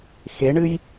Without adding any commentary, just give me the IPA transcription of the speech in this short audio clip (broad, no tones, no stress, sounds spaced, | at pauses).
x e ɳ ɨ j